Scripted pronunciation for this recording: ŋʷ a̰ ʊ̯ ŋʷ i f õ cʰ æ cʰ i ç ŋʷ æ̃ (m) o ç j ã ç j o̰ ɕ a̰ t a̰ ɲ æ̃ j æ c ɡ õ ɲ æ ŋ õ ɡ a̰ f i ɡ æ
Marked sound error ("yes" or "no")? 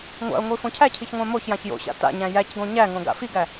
no